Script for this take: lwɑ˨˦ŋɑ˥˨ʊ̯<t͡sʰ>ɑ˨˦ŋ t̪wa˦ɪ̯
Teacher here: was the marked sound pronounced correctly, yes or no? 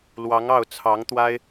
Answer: yes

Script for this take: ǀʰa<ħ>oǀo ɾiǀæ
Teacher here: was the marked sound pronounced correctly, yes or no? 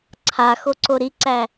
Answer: no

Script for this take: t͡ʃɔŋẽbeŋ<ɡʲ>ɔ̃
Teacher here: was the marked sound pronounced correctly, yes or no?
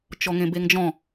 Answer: no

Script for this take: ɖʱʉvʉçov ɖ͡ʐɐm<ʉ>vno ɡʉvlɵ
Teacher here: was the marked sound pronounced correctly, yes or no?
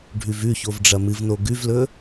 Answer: no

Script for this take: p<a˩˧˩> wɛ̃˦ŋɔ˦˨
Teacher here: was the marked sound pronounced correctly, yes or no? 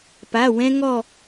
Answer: yes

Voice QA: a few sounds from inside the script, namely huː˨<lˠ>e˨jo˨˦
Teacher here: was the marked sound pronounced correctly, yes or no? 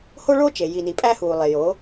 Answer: yes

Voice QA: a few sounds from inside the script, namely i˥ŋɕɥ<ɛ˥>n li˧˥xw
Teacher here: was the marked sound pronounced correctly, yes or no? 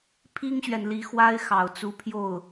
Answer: no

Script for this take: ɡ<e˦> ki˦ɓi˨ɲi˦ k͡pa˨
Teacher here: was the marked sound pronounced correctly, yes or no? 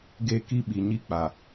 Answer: yes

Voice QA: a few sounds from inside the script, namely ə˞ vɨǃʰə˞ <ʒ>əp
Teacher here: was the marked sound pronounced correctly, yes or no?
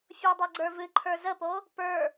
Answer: no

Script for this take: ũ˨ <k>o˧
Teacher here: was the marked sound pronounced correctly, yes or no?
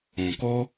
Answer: yes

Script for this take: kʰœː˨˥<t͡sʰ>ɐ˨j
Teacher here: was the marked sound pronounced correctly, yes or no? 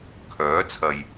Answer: yes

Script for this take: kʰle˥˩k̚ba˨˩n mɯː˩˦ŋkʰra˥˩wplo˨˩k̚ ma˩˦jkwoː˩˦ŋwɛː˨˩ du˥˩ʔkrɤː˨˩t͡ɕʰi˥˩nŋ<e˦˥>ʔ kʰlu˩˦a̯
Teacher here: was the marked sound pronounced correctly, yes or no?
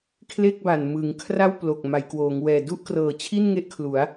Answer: yes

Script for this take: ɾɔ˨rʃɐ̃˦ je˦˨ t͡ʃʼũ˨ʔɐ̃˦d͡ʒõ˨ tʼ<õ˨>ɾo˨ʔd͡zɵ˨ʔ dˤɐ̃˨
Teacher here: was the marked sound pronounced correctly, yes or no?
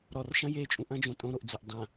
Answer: no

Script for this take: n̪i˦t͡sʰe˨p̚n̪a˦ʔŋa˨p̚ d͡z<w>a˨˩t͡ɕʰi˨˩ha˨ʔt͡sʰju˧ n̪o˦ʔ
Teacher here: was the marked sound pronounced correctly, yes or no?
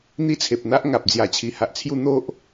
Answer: no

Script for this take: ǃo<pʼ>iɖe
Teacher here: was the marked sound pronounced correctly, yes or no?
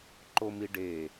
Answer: no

